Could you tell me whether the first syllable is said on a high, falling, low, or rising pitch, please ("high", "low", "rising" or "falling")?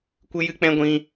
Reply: high